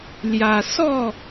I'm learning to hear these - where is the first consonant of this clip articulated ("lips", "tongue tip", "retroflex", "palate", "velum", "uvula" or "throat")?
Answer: tongue tip